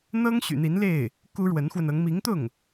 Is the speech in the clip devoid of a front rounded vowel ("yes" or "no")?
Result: no